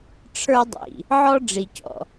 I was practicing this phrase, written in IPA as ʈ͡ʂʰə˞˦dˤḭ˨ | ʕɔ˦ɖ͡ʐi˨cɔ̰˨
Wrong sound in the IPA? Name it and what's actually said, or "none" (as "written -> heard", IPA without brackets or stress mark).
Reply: none